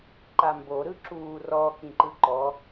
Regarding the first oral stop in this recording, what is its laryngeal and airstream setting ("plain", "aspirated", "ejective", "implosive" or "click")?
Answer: click